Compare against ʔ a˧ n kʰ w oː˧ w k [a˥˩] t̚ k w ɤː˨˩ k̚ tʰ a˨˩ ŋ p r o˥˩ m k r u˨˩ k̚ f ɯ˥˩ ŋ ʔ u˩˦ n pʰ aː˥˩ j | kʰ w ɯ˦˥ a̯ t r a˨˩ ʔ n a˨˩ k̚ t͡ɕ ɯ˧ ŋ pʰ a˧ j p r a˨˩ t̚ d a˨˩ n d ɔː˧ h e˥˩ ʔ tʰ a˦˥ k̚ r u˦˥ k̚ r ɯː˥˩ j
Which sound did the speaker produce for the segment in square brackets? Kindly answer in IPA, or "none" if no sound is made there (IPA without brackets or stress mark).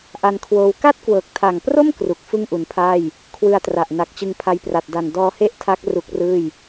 a˥˩